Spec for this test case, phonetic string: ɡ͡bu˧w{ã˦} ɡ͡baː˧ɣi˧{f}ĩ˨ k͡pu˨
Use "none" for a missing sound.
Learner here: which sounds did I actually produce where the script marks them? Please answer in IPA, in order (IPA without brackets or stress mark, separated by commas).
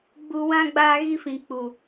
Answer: ã˦, f